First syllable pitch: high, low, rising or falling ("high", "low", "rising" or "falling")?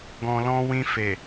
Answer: low